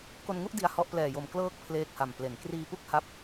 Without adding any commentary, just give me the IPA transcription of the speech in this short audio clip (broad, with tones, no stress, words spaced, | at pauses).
ko˧nŋu˥˩ʔ di˦˥a̯hɔ˦˥ʔ plɛː˨˩jo˨˩m klɤː˦˥k̚ pʰleː˦˥k̚ha˨˩mple˨˩n kriː˧pu˥˩k̚ ha˦˥p̚